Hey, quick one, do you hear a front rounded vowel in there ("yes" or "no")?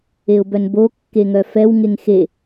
yes